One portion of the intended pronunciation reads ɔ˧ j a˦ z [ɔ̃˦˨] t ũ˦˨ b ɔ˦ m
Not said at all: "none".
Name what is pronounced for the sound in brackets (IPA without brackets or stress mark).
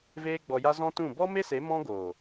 ɔ̃˦